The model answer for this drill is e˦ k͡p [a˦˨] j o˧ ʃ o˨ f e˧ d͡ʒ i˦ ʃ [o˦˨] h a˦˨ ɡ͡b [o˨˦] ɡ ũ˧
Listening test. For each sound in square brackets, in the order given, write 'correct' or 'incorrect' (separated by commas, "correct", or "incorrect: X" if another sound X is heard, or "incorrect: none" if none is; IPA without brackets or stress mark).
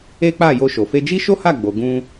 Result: correct, incorrect: o˦, incorrect: o˨